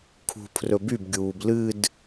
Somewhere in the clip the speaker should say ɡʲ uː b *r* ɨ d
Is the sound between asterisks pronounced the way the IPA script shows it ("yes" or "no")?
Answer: no